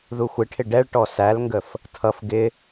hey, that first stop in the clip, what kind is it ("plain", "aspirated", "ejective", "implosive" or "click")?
aspirated